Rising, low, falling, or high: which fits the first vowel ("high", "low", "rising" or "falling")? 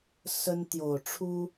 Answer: high